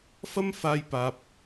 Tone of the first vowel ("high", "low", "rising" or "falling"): high